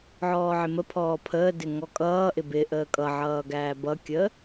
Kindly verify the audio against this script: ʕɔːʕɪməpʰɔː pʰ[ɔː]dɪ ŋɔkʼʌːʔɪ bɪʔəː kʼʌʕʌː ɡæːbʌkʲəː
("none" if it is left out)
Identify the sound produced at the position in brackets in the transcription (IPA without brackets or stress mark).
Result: əː